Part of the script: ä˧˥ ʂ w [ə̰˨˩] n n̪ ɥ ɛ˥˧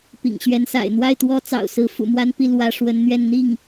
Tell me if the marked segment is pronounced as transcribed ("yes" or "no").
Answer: no